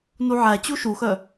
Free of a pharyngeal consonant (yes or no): no